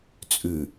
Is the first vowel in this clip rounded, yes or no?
yes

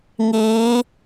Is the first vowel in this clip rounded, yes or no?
no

